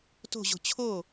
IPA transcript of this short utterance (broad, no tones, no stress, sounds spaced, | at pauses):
t o̤ ʑ o̤ t͡ɕʰ o